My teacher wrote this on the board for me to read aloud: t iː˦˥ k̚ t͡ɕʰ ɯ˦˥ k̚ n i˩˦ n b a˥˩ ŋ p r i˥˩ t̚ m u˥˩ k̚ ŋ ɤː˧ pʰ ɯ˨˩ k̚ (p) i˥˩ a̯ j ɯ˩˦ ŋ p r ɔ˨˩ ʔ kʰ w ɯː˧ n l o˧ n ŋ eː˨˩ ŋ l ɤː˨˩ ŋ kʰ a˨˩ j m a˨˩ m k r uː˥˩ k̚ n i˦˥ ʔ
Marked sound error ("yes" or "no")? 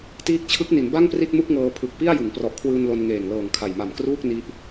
no